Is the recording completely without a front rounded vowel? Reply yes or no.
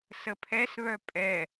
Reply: no